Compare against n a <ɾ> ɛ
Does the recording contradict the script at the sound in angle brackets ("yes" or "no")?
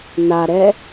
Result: no